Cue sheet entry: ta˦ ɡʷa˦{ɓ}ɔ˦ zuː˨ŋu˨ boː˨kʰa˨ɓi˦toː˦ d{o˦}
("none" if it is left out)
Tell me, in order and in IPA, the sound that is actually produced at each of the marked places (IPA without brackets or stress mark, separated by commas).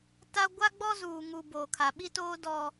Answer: ɡ͡b, ɔ˦